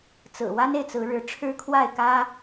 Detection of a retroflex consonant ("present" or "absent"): present